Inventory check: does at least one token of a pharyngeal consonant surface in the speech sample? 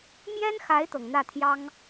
no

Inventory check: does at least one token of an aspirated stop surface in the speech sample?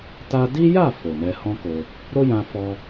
no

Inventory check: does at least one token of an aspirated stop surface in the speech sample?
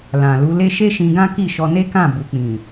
no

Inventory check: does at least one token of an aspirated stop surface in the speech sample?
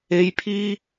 yes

